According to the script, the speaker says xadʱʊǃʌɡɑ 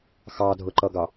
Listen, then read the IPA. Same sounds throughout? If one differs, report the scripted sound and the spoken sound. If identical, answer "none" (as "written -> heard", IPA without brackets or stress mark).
a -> ɑ